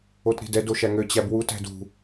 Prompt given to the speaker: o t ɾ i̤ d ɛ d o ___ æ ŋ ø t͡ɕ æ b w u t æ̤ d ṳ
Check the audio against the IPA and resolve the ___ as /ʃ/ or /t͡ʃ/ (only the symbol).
ʃ